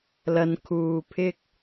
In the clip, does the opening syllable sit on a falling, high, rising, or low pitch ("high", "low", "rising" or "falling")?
low